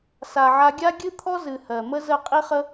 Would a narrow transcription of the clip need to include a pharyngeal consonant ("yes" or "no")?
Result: yes